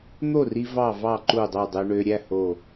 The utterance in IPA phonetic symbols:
n̪ o˥˨ r i˧ v ɑ˥˨ v ɑ˥˨ ǃ u˥˨ dˤ o˥˨ dˤ ø˧ ɳ ø˧ ɾʲ æ˥˨ h o˧˩

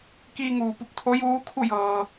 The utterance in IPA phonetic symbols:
k iː˧ ŋ uː˩ p u˧˩ p̚ t̪ʰ o˧˥ j uː˧˥ kʰ u˥˨ j ɤː˩

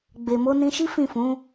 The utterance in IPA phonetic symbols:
ɡ͡b e˨ m o˧ n ĩ˧ ʃ i˦ f ĩ˦˨ f ũ˨˦

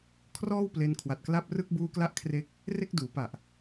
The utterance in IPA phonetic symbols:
kʰ r ɔː˥˩ w p l e˧ n kʰ w a˨˩ t̚ k l a˦˥ p̚ r ɯ˦˥ k̚ b uː˦˥ k l a˥˩ ʔ kʰ r e˦˥ k̚ | r e˥˩ k̚ d uː˩˦ p a˨˩ ʔ

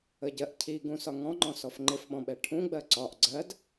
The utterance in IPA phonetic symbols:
ə ɟ ɜ ʔ cʰ i ɡ ũ s ɒ ŋ ɔ̃ ŋ͡ǃ ɔ̃ s ɔ f ŋ͡ǃ ɪ f ɓ ɔ̃ ɓ ɛ ʈʰ ũ ɡ͡b ɜ ǀ ɒ ʔ ɡ͡ǀ ɜ d

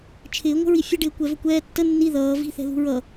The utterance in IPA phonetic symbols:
t͡ʃʰ ɪː ŋʷ ə̤ ɹ i fʲ ə ɖ ɪː kʷ ɛ v ə kʷ ɛː tː ə nː i ð ʌː v i̤ θ ɛ̤ ð ṳ ɹ ʌ

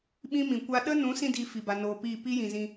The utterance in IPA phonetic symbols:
ɓ ĩ˦ m ĩ˨ kʷ a˦ ɗ ə˦ n ũ˨˦ s ĩ˧ d i˨ f i˨ b a˨ n oː˨ p iː˦˨ p i˦ j ĩ˨ z ĩ˧

